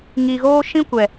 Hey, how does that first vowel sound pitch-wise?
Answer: low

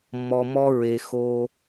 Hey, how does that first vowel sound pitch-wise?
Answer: low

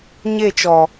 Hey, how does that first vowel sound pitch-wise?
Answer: falling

